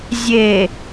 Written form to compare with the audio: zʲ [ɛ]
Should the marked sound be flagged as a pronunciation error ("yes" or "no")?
yes